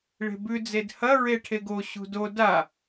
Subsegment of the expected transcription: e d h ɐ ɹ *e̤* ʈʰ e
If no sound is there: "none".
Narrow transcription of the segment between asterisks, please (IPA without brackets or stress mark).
e